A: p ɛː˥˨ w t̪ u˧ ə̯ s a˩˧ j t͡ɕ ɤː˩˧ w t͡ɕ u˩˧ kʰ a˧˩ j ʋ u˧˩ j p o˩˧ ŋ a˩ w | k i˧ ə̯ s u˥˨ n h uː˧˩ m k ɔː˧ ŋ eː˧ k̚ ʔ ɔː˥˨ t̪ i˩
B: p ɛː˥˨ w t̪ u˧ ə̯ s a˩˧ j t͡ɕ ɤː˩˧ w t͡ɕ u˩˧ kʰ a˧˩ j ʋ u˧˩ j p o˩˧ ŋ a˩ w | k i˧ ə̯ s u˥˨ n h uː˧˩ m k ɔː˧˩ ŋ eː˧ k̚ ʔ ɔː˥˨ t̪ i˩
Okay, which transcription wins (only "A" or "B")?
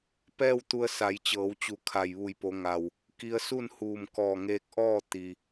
B